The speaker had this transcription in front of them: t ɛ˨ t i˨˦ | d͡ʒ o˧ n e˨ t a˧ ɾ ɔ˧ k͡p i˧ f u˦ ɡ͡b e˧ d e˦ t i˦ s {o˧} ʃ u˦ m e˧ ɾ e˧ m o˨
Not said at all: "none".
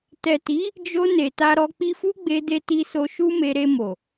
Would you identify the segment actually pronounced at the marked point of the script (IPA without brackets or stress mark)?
o˧